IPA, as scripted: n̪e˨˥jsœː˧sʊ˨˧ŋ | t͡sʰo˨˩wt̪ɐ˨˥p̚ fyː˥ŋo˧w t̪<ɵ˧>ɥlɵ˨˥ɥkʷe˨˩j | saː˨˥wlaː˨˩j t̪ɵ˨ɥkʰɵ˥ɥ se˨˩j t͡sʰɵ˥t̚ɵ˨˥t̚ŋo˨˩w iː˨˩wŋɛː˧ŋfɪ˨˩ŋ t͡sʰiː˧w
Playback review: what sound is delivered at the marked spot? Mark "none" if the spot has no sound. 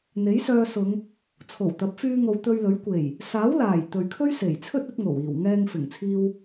ɵ˧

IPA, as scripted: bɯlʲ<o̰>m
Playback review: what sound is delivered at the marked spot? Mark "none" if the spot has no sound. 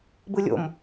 o̰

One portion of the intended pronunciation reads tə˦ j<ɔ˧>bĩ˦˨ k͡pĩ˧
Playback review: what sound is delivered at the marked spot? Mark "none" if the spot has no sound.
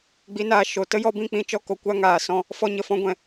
ɔ˧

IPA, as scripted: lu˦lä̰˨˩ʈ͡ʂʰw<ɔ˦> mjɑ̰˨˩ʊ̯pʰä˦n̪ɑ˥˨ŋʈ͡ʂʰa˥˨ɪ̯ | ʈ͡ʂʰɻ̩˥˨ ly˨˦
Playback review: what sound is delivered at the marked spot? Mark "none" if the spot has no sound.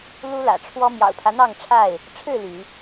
ɔ˦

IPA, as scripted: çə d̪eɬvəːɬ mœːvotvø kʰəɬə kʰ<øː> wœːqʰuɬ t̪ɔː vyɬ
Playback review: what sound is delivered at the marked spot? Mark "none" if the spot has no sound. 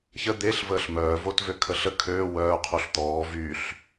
øː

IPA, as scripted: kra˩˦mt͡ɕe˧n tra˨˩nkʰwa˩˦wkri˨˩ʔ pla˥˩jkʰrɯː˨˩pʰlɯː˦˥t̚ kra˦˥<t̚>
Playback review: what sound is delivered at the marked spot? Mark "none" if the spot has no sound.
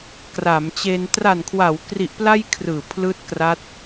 t̚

